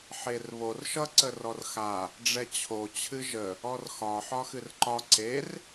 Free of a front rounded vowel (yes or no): yes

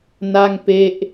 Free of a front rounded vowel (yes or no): yes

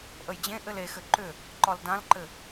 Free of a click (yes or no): no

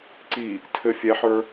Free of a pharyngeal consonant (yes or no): no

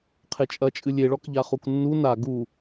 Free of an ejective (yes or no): no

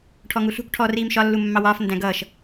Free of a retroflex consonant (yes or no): no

